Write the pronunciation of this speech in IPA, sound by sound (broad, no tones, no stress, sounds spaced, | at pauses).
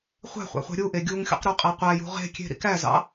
χʷ æ̤ χʷ ɑ̰ χʷ æ̤ ɾʲ u ʔ e ɡʲ u ŋ xʲ ṵ q ɾ ø qʼ æ qʷ æ j ṳ ʁ e̤ kʲ e̤ ɾ ḭ k æ z ɑ̰